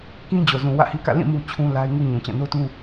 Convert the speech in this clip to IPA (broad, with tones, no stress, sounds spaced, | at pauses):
k ĩ˦ d͡ʑ o˨ z ũ˨ w ä̰˦˨ h i˦ k ä̰˦˨ l ĩ˦˨ m u˦ t͡ɕʰ ũ˦ l a˦ ɪ̯ ŋ u˦ ɲ ũ˨ t͡ɕ ã˦˨ n o˦ t ũ˦